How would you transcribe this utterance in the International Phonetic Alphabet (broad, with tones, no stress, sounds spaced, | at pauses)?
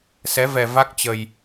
s ɛ˨˦ v ɛ˨˩ v a˦˥ k̚ t͡ɕ ə˨˩ j